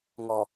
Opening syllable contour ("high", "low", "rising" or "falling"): low